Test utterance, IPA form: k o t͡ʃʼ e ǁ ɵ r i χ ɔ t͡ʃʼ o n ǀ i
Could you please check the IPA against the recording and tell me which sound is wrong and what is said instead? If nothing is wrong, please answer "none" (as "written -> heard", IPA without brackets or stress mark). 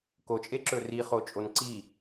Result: ɔ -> o